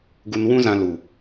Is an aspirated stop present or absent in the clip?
absent